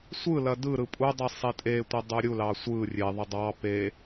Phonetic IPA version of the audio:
sʷ ɯ l ɐ d ɯ ɾ ɯ pʼ u dˤ i sˤ e tʼ e tʷ ɐ dˤ u ɾʲ u l ɑ sʷ ɯ rʲ e ðˤ ɐ dˤ ɑ p e

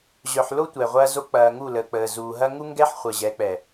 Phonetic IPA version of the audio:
ʑ œ˨ ħ l o˦ tʷ ɛ˨ ʁʷ ɐː˦ z o˦ k͡p ɐː˨ ŋ u˦˨ l əː˨ k͡p əː˨ z uː˨ ɦ ɐ˦ ŋ u˦ ŋ ɡ ɛ˦ ħ χʷ əː˨ ʑ ɛ˨˦ k͡p ɛ˨

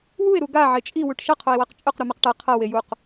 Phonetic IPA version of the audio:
w u e̯ ɾ u ɡ a ʕ e t͡ʃʼ i w u ʈ ʃ ɐ qʰ o e̯ w a q t͡ʃʼ ɵ q ɾ u m e q ʈ a qʰ ɐ w e j u q

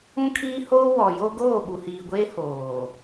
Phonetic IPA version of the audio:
ũ˦ kʰ iː˦ h oː˦ w ɔ˨ j o˦ ɡ oː˦˨ ɓ u˨ h iː˨ ɡʷ eː˦ h oː˨

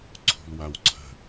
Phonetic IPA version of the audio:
ǀʰ ṳ l w a w ǀʰ ə̤

